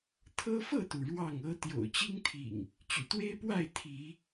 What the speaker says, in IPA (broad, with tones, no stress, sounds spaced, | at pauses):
t̪ʰ ɤ˦ f ɤ˥˨ t̪ u˩ ɻ w ɑ˥˨ ŋ ɤ˦ t̪ j o̰˨˩ ʊ̯ t͡ɕ i˦ ŋ t̪ʰ ḭ˨˩ ŋ | t͡ɕ y̰˨˩ t̪ w e˦ ɪ̯ p w a˥˨ ɪ̯ t̪ʰ i˨˦